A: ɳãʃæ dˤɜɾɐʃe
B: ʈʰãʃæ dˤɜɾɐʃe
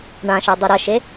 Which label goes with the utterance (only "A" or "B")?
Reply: A